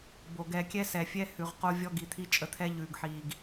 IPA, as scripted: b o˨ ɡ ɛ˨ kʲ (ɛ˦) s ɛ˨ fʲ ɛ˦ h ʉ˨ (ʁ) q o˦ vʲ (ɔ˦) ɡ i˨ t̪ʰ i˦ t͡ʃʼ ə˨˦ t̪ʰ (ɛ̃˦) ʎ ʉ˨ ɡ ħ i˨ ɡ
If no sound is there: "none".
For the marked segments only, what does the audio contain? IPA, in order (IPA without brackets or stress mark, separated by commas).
ɛ˦, ʁ, ɔ˦, ɛ˦